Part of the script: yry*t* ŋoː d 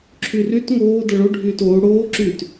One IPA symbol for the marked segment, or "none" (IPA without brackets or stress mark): t